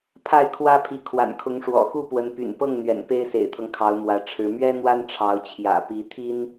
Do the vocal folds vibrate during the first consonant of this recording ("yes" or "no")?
no